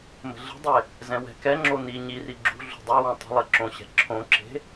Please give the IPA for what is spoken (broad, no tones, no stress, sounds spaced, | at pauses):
m ə̤ ɮ ə̤ dˤ e | z ɛ̃ w ɛ̤ k ɛ ŋ͡ǁ o n i ɲ i r i ɡ͡ǁ ṳ ɮ ṳ dˤ y w õ tˤ ə̤ lˠ e ǁ õ ɕ ɛ̤ ǁʰ õ ǁ e̤